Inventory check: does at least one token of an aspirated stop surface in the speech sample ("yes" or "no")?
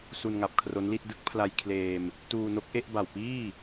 yes